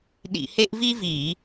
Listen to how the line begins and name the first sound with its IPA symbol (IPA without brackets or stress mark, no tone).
ɗ